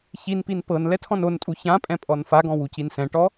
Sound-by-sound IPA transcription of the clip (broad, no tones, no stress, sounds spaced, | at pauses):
ç i n p i n p ɤ n l ɛ tʰ ɔ̃ n o n tʼ u ç ã pʼ ɛ̃ pʼ ɔ n f a ɡ ɔ̃ w u c i n s ɛ̃ ʈ ɔ